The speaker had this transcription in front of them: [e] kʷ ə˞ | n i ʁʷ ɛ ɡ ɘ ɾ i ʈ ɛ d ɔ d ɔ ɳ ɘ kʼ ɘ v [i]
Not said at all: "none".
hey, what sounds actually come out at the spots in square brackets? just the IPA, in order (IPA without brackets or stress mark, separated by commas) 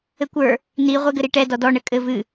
ɘ, ɨ